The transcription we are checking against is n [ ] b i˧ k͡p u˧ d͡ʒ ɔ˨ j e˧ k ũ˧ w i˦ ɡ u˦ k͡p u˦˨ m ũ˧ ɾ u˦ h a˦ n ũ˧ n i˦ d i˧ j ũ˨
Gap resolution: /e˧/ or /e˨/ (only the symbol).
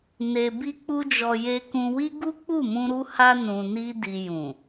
e˧